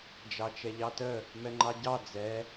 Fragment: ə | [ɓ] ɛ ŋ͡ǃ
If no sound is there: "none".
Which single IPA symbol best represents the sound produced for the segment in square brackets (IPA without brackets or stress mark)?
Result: m